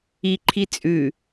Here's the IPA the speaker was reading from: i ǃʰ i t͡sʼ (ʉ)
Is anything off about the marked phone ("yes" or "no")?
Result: no